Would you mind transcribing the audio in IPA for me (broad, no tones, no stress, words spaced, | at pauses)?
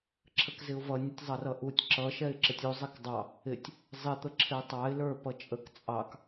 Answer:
ǁʰəkzɪʊ̯vʌ nʲətʲzˤʌrʌʔutʲ ǁʌ ʃɛɪ̯ǁətʲu zˤɛkdˤɑ | ɪtʲ | zˤɪ t̪əǁʰɪʊ̯tˤɑɪ̯ lə˞ pʌt͡ʃʼək t͡sʼɑk